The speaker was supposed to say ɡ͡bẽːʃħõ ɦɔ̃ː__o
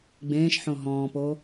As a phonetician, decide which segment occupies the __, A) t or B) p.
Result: B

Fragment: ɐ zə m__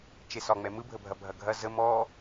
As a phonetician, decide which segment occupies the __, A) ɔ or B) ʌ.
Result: A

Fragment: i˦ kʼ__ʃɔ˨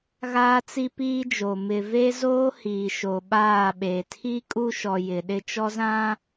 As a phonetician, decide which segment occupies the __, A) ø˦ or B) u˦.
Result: B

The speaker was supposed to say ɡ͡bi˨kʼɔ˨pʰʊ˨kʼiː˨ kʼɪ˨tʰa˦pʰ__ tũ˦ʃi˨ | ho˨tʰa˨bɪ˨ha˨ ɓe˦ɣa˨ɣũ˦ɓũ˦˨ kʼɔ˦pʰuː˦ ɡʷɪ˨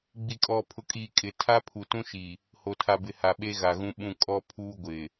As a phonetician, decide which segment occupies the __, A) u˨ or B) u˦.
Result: A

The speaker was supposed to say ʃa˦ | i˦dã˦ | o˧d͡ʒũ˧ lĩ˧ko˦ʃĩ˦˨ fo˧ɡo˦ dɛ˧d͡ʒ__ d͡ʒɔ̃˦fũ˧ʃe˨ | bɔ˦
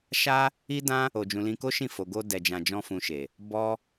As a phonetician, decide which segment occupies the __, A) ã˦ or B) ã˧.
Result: B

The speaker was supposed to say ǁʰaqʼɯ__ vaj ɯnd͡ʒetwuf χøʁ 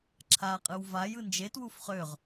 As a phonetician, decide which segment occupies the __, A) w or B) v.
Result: A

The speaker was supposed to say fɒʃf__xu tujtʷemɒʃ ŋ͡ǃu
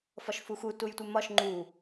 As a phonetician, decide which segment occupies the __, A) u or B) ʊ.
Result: A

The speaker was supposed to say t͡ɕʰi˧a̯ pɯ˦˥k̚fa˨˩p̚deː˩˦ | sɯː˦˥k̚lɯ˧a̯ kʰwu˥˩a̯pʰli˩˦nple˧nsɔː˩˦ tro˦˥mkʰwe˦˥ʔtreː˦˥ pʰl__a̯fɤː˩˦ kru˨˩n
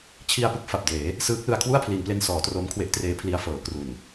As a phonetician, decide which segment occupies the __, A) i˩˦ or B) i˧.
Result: B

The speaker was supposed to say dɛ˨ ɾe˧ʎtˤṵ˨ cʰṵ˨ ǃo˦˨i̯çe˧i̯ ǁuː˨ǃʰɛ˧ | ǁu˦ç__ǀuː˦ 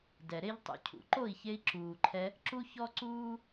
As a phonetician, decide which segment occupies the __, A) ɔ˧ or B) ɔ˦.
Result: B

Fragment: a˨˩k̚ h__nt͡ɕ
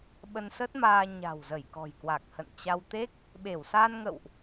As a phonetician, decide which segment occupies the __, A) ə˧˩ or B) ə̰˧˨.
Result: B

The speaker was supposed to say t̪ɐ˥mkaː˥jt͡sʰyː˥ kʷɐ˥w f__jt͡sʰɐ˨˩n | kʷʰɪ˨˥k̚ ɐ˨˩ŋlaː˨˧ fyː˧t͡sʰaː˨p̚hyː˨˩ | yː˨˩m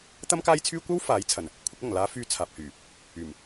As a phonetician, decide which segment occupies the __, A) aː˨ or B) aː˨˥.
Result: B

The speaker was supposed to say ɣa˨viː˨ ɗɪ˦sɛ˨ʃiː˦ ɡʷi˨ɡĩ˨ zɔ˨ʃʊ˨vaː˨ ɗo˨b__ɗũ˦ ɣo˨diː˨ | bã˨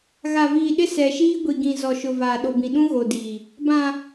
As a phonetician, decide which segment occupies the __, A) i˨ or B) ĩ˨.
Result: B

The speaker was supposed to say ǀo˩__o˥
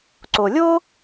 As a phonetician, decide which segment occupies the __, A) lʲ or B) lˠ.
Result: A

